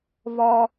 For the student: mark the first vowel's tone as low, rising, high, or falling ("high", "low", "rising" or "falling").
high